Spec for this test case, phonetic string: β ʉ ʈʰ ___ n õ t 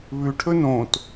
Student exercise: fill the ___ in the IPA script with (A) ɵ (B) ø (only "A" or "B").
A